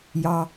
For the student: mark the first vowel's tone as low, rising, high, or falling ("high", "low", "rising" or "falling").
low